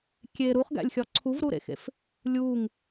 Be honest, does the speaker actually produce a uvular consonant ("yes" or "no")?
yes